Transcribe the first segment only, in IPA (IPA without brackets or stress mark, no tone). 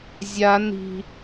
zʲ